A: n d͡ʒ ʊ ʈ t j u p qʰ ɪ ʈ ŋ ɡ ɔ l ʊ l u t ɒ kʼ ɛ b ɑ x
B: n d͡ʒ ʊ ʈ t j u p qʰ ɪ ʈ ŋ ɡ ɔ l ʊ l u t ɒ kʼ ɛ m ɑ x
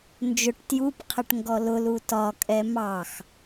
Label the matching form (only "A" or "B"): B